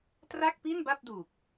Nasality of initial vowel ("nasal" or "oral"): oral